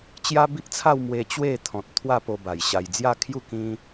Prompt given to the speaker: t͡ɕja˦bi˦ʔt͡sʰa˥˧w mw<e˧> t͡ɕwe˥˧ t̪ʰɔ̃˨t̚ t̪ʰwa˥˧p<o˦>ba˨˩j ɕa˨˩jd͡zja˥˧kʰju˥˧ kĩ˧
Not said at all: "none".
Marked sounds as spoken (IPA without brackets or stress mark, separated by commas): e˧, o˧